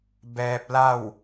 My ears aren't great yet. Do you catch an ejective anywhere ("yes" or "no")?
no